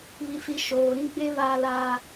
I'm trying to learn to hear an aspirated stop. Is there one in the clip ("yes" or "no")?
no